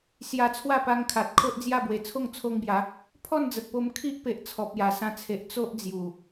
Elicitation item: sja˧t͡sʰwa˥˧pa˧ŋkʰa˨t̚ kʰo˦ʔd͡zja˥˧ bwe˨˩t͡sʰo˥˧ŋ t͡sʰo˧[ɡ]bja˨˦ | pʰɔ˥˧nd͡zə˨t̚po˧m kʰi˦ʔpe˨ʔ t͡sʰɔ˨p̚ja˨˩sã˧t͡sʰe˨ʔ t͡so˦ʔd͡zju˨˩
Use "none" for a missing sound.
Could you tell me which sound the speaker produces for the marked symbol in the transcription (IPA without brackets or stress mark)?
ŋ